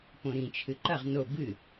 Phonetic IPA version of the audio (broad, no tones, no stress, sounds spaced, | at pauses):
p õ ɾ ĩ t͡ʃʰ ɨ ǃ ɐ ʁ n o b ɨ